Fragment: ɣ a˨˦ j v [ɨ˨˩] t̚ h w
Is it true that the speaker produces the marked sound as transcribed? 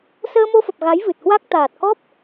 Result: yes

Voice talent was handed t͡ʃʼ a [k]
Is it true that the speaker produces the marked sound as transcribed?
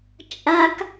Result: yes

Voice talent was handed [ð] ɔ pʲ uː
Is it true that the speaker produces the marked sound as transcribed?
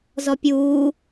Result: no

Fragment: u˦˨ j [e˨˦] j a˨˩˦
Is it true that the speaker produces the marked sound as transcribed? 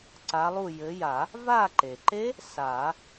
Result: no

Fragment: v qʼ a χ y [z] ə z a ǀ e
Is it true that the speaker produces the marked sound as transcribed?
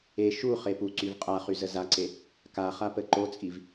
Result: yes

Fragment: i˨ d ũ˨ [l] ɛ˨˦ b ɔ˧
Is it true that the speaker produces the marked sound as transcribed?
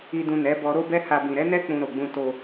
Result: no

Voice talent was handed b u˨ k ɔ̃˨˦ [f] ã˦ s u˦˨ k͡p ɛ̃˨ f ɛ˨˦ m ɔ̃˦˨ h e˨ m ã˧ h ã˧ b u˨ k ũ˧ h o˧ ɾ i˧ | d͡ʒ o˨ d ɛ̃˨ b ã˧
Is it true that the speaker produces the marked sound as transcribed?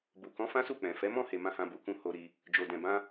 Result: yes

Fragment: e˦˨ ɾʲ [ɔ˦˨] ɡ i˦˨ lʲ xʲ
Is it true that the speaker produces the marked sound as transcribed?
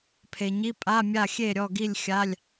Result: yes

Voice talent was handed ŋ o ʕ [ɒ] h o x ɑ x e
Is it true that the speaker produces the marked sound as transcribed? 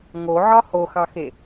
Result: yes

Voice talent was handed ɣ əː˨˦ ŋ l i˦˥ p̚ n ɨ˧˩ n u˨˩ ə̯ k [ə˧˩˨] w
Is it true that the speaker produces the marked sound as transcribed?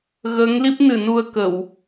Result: yes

